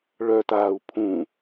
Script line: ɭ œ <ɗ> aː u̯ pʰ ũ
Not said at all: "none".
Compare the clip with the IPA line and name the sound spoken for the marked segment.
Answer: t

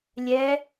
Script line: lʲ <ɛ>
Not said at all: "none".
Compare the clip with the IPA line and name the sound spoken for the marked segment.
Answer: ɛ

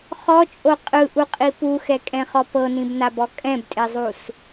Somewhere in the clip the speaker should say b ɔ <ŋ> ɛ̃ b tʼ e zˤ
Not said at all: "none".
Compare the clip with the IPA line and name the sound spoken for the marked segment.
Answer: kʼ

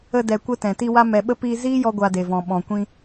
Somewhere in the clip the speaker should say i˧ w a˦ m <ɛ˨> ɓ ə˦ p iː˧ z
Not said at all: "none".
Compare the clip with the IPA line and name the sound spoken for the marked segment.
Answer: ɛ˨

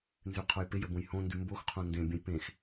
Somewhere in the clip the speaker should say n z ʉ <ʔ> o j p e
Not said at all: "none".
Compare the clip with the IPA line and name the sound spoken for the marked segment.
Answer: qʰ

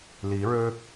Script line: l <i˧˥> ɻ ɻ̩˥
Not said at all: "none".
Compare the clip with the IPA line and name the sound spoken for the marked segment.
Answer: i˧˥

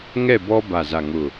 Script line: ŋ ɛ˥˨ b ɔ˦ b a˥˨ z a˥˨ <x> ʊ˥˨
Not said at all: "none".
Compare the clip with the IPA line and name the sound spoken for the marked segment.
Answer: ŋ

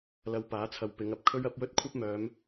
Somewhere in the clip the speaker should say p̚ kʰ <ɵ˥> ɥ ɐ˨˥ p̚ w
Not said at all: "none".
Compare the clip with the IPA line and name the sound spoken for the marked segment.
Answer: ɵ˥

